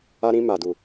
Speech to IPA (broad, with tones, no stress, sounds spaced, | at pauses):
a˦ ɾ ĩ˦ m a˨ d u˨